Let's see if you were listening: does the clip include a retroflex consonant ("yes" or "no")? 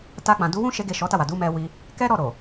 no